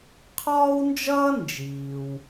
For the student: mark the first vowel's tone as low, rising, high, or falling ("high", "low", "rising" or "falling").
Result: high